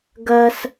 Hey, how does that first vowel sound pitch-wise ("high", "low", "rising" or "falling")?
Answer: high